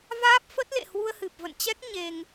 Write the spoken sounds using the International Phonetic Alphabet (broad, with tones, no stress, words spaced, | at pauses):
vaː˦˥p̚fə˦˥t̚lḛ˧˨hwu˧ə̯ hɨ˨˩p̚ və̰˧˨nt͡ɕɛ˦˥k̚ ɲe˧ŋ